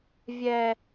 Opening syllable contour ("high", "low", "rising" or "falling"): high